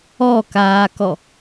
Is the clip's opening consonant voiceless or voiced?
voiceless